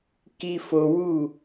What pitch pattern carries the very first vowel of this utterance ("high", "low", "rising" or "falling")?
low